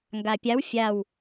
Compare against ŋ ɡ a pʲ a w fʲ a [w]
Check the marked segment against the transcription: correct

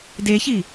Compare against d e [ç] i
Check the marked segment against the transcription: correct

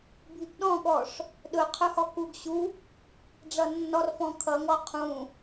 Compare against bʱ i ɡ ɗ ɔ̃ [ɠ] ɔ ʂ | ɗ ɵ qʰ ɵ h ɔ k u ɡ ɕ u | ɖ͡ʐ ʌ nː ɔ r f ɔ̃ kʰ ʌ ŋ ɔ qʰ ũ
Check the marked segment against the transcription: correct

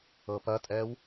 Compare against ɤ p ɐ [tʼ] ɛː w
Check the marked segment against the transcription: correct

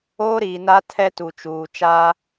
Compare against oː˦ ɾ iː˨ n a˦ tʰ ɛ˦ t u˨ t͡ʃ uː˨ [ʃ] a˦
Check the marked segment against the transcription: incorrect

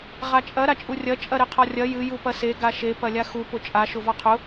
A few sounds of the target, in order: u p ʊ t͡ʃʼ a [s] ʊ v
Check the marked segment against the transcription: incorrect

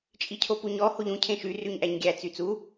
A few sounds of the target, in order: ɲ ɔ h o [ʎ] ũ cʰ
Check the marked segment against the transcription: correct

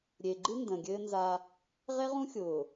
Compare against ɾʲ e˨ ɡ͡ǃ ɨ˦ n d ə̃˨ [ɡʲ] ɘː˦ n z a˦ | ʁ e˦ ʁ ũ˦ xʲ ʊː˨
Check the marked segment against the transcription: correct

